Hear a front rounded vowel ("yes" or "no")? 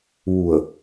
no